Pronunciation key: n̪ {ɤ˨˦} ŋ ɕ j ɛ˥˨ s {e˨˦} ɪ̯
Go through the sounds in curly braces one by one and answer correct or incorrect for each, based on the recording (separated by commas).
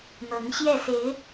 correct, correct